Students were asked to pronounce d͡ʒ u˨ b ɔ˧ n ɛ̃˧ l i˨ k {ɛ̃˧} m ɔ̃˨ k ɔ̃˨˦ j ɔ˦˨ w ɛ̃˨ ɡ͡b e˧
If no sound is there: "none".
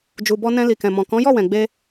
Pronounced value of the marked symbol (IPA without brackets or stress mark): ɛ̃˨